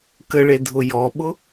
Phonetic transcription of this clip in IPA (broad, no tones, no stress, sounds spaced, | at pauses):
k ə ɭ e dʱ ʊ j ɔ ɓ ʊ